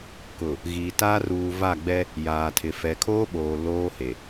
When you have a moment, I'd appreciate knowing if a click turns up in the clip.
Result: no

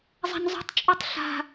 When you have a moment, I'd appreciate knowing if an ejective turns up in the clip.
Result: yes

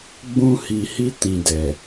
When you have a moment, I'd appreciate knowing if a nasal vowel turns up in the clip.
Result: yes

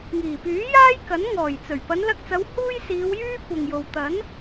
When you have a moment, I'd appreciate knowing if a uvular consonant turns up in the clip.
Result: no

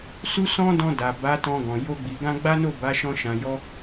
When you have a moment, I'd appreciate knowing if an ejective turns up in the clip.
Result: no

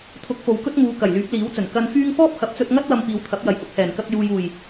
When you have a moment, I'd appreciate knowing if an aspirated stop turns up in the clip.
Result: yes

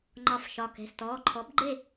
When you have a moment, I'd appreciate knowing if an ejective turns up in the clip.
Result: no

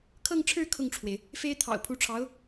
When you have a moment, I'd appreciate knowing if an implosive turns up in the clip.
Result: no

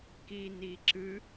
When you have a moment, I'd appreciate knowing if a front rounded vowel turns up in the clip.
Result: no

